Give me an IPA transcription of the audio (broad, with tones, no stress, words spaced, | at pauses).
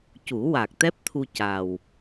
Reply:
cu˨˩˦wa˨˩k̚t̪ɛ˦˥p̚ t̪ʰu˧ca˨˩w